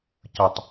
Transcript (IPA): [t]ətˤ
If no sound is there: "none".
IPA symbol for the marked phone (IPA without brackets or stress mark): c